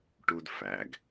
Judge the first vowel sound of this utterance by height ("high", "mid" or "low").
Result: high